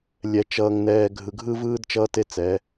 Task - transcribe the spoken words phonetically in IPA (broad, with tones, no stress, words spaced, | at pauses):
lʲɛ˨t͡ʃʌː˨ŋnɛː˨ ɡʱɯ˨ɡʱɯ˦vɯː˦d t͡ʃʌː˦te˦t͡sɛ˨˦